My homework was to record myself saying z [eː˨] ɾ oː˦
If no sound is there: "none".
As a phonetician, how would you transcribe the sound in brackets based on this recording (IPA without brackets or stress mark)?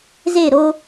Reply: eː˦˨